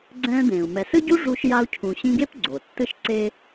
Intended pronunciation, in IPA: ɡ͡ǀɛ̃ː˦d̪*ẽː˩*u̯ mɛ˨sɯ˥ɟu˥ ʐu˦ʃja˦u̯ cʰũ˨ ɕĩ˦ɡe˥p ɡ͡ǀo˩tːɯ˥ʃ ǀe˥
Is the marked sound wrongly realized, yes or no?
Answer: no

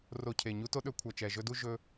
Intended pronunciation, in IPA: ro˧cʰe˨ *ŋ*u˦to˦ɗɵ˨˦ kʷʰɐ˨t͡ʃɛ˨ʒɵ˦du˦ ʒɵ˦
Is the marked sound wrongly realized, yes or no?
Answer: yes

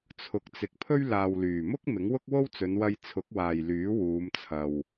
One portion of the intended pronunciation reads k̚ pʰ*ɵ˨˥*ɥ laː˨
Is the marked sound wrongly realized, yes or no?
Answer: yes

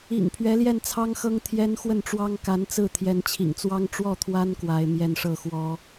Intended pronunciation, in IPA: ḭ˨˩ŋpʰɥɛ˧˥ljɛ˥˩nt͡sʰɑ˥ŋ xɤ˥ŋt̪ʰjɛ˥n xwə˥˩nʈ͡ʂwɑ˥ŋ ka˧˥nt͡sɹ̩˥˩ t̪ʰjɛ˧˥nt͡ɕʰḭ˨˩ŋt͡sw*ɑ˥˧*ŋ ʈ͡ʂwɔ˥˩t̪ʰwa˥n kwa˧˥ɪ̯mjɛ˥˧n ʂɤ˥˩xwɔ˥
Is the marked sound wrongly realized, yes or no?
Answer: yes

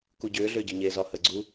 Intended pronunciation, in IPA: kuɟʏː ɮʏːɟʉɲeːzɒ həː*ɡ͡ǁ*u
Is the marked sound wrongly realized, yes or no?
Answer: yes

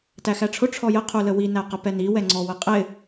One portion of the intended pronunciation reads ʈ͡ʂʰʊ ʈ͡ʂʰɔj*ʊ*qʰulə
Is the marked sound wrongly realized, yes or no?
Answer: yes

